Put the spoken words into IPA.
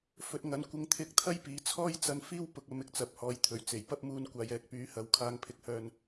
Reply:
f ɵ˧ t̚ ŋ ɐ˧ n kʷ ɪ˧ ŋ t̪ʰ ɪ˧ k̚ t̪ʰ ɐ˥ j p iː˨˥ t͡sʰ ɔː˥ j t͡s ɐ˧ n f iː˥ w p ʊ˨ k̚ ɐ˨˧ m ɪ˨ k̚ t͡s ɐ˨˥ p̚ h ɔː˨ j t̪ʰ ɵ˨˩ ɥ t͡s e˨˩ j p ɐ˥ p̚ m uː˧ n kʷ aː˨ j ɛː˨ k̚ p yː˨˥ h ɐ˨˥ w kʰ aː˧ ŋ pʰ ɪ˧ k̚ h œː˧ n

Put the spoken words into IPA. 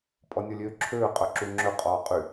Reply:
pʼ ɔ nʲ ɔ lʲ øː ǁʰ øː qʼ œ ǁ u ŋ͡ǁ ɵ qʼ ɔː qʼ y

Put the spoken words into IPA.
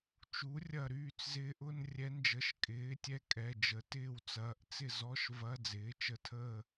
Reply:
t͡ʃ u˩˥ rʲ ɐ˧˩ ɾ yː˥˨ t͡s z ɪː˧˥ ʔ ʊ˧˥˧ n rʲ ɛ˧˥ n d͡ʒ ə˩˧˩ ʃ kʼ ɪː˩˥ tʲ ɛ˧˥˧ kʼ ɛ˩˧˩ d͡ʒ ə˩˥ t ɪː˥˨ w t͡s ɐː˩˧˩ ʔ t͡s ɪ˥˨ z ɔ˧˥˧ ʃ v ɐ˧˥˧ d͡z ɪː˩˥ t͡ʃ ə˩˧˩ tʰ əː˥˨

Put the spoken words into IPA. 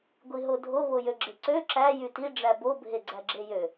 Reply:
ɡʷ i ɦ o dʱ o β o j ø ɡ͡ǁ e ǀ ø ǁ æ j y t i ɖ͡ʐ æ b o bʱ e ɡ͡ǀ æ ɡ͡ǁ e j ø

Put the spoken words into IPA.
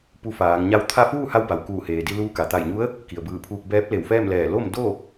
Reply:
p u˧ f aː˩˧ ŋ ɲ a˥˨ w t̪ʰ a˥˨ f uː˥˨ h a˧ w b a˩ w k uː˧˩ h eː˩ d i˧ l uː˧ k a˩ t̪ a˧˩ j ɲ u˧˥ ə̯ | k i˩ ə̯ b ɯː˧˩ pʰ uː˧ k̚ b ɛː˧˥ p̚ l e˧˩ w f ɛː˥˨ m l ɛː˧˩ l o˥˨ m d o˥˨

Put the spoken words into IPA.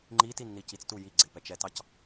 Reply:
ŋ͡ǃ i t i nː i c i t͡s t u j i ɡ͡ǀ e p ɛ t͡ʃ ɛ t ɑ c

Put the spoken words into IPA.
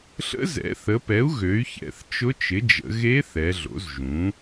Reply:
ɬ ə̰˧˥ z ɛ̰˩˥ θ ə˩˧ p ɛ˩˥ u̯ ɣ ø˩˥ y̯ ç ɛ̰˩˧ θ t͡ʃ ʊ˧˥ t͡ʃ ɪ˩˥ d͡ʒ ə̰˩˧ ɣ e˧˥ θ ɛ˩˧ ɮ o̰˩˥ z ʒ ũ˩˥

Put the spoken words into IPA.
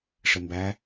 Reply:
ʂ ɘ m b æ

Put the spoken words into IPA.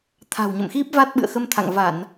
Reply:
t̪ʰ a̤˨˩ w ɲ ə̰˧˨ m x i˦˥ p̚ v a˦˥ t̚ ɓ ɨ̰˧˨ ə̯ x ə˧ m t̪ʰ a̰˧˨ ŋ v a˧˩˨ n

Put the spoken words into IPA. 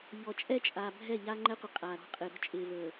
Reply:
ʎ ɔ˨ t͡ʃʼ ɛ˦ t͡ʃʼ aː˨ bʱ ɛ˦˨ ʎ aː˦ ŋ͡ǃ ɛ˦ qʷ ɪ˨ qʼ aː˨ ɾ ɔ̤˨˦ qʼ ɪː˨ ɾ ɔ̤˦ t͡ʃʼ ɪː˨ v əː˨

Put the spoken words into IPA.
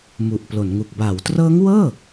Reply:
m u˨˩ ʔ p l o˩˦ n ŋ u˨˩ k̚ b a˩˦ w t r ɤː˦˥ ŋ w ɤː˥˩

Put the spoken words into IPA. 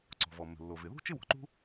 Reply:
ǀ ɔ̤˩ v ɔ˩ mː ə̤˩ lː o˩ v ɪ˩ ð ṳ˥ t͡ʃ ɪ˥ w ɔ̤˩ ǃ ṳ˥

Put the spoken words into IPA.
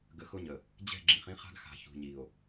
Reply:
ɡ ə˨ x ʊ˦ ɲ ə˨ | d͡ʑ ɛ̤˦˨ ɡ͡ǁ ĩ˨ χ ĩ˦ χ a̤˦ ɡ x a̤˨ ç ṳ˨ ɲ i˨ o̯

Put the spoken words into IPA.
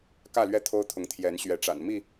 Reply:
k ä˥˨ l ɥ ɛ˥˨ t̪ʰ o˦ ʊ̯ t̪ʰ ʊ˨˦ ŋ t̪ʰ j ɛ˨˦ n ɕ ɥ ɛ˨˦ ʈ͡ʂ a̰˨˩ n m i˥˨

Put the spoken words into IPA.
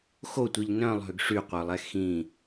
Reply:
x o tʷ i ʎ n œ̃ lˠ ɦ ø ɡ ʂ y qʷ œ lˠ ɛ x ĩ

